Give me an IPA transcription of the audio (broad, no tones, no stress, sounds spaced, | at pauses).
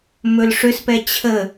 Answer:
m ɵ l ʂ ʏ s p ɛ t͡ɕʰ ə